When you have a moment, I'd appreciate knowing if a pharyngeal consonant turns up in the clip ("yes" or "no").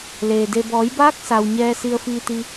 no